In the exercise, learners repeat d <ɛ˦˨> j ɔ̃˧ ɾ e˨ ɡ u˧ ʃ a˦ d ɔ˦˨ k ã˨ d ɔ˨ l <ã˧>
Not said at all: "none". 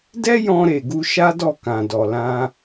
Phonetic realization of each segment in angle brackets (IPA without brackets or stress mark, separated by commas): ɛ˦, ã˧